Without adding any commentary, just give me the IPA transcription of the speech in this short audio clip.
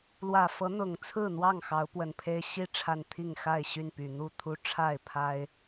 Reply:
l w ä˨˩ f ɤ˨˦ n̪ ʊ˨˩ ŋ t͡sʰ ɹ̩˥˨ n̪ w ɑ˥˨ ŋ x ɑ˨˦ ʊ̯ p w ə˨˩ n pʰ e˦ ɪ̯ ɕ i˦ ʈ͡ʂʰ a˨ n t̪ʰ i˥˨ ŋ x a˥˨ ɪ̯ ɕ y˥˨ n p y˨˩ n̪ u˥˨ t̪ʰ u˦ ʈ͡ʂʰ a˥˨ ɪ̯ pʰ a˦ ɪ̯

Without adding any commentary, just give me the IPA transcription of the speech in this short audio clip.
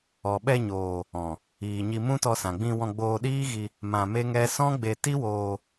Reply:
ɔ˧ ɓ ɛ˧ ɲ oː˨ | ɔ̃˨ | iː˨ ɲ i˧ m ũ˦ t ɔ˧ s ã˨ ɡ͡b ĩ˧ w ɔ̃˧ ɡ͡b oː˧ ɗ iː˦ ɣ i˧ | m ã˧ m e˦ ŋ ɛ˦ s ɔ̃˦ ɡ͡b e˧ t i˦ w oː˧

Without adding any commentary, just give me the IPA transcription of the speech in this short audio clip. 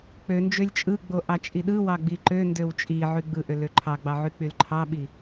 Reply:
k͡p ø n d͡ʒ ø lʲ t͡ʃʼ ɯ ɡ͡b o ʔ ɑ t͡ʃʼ i ɗ ɯ w ɑ ɡ͡b i ǃ ø n d ø w t͡ʃʼ i ʕ y ɡ͡b ɯ ʔ ø l ø ǃʰ ɑ ɡ͡b ɑ ʕ y k͡p y l ǃʰ ɑ ɓ i

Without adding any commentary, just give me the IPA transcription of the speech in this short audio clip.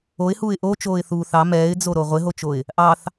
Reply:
o ɪ̯ h uː ɪ̯ ʔ o t͡ʃ oː ɪ̯ θ uː θ ɑ m ɛː ɪ̯ d͡z o ɾ o ʁʷ ɪ ɦ o t͡ʃ o ɪ̯ | ʔ ɑ θ

